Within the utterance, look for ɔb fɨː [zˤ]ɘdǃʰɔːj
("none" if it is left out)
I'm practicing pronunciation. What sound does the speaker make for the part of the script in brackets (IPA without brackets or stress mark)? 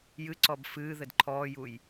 ð